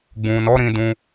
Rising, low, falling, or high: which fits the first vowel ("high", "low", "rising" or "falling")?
low